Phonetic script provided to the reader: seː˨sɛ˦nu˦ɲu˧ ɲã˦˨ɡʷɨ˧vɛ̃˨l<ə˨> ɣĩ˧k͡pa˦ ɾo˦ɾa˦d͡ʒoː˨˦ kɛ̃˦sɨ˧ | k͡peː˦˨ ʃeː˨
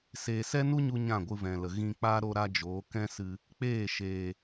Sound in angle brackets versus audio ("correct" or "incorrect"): correct